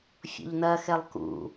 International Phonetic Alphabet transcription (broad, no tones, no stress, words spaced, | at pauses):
fʲɔ̰ʎnɐxɛlˠ kṵ